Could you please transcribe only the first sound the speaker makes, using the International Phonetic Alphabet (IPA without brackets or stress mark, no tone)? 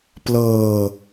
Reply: p